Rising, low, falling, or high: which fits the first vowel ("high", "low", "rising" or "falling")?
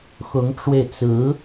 rising